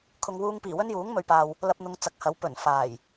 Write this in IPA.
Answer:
kʰ ʊ˨ ŋ w uː˧ ŋ p iː˨˩ w ɵ˥ n j uː˨˥ ŋ m ɵ˨ ɥ p aː˨ w | l ɐ˧ p̚ n̪ ʊ˨˧ ŋ t͡s ɐ˨˥ k̚ h ɐ˨˥ w p ɵ˨˩ n f aː˨˩ j

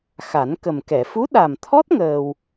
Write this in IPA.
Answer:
x a˨˩˦ n k ə˨˩ m k ɛ˨˩˨ f u˧˥ ɗ a˨˩ m t̪ʰ ɔ˦˥ t̚ ŋ əː˧ w

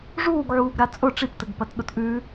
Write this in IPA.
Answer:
ʐ uː ɡ ʕ uː ɡ ɾ a t͡sʼ ʊ ʈ͡ʂ i p t ə ɡ p ɐ t ɗ ʊ t ʔ ʉ

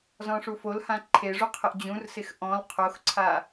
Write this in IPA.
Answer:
z ɔ̃ ʂ u f o l h ã ǃʰ e ʐ u qʰ ə ʔ d͡ʑ ũ r s ɪ x ʔ ɔ̃ l qʰ o x ǀʰ a

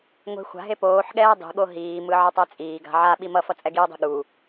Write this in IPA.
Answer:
ŋʷ e̤ xʷ a̤ ɦ e p oː ħ ɠ ɛː dˤ i̤ ɠ o ɦ iː m ɯ ʕ ʌ tˤ ɛ t͡sʼ iː ɡ a̤ ʕ a ɓ i m ʌ f ʌ t͡sʼ ɛ ɡ i o̯ dˤ i̤ ɠ u

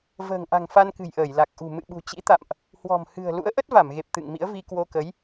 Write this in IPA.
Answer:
v ə̤ː˨˩ ŋ ʔ a̤˨˩ ŋ f a˧ n k ɨ̤˨˩ j ʔ əː˧˩ j l a˨˩ k̚ ʔ ṳ˨˩ m ɨ̰˧˨ ɓ ṳ˨˩ t͡ɕ ḭ˧˥ t̪ a̰˧˨ m ʔ | h w ɔ̤˨˩ m h ɨ̤˨˩ ə̯ l ṵ˧˥ ə̯ ʔ ə˦˥ t̚ v a˧˩ m ɣ e˨˩ p̚ t̪ ɨ̰˧˨ ŋ m ḭ˧˥ ə̯ v i˧ k w o˧ k ə˨˦ j

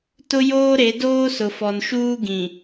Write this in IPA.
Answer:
t ʊ˦ j oː˦ ɾ e˨˦ d oː˦ s ʊ˨ f ɔ˨ n ʃ uː˦ ɡ ĩ˨

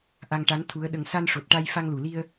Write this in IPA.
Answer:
ʔ a˧ ŋ ʈ a˧˥ n t̪ʰ u˧˥ ə̯ ɗ ə˧ ŋ s a˧ n ʂ o˨˩ t̚ ʈ a˧ j f a˧ ŋ l u˨˩˨ l i˧ ə̯

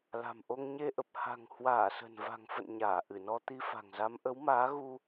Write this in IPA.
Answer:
l a̤˨˩ m ʔ o˧ ŋ ɲ e˧ ʔ ə˨˩ p̚ h a̤˨˩ ŋ h w aː˧˩ s ə̤˨˩ n v a̤˨˩ ŋ f ə̰˧˨ n ɲ aː˧˩ ʔ ɨ˧˩ n ɔ˧ t̪ i˧ f a̤˨˩ ŋ z a˨˦ m ʔ ə˨˦ w m aː˨˦ ɣ u˧

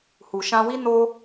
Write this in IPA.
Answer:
h u˨ ʃ ã˧ w i˦ n o˦

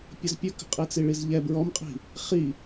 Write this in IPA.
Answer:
pʲ ə z pʲ ɵ k ə̤ qʼ i t͡s i ɭ i z ʎ ɛ b ɹ ɔ m qʼ i̤ | χ i

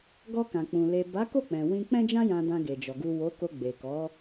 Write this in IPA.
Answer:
ɡ ɔ˧ k ã˨ k͡p ũ˨ l e˨ b a˨˦ k o˦˨ k͡p ɛ̃˨ w ĩ˧ k͡p ɛ̃˦ d͡ʒ ã˦ j ã˧ d ã˧ ɡ e˨ d͡ʒ ɔ˨ ɡ u˨ w o˨˦ k o˧ ɡ͡b e˨ k ɔ˨˦

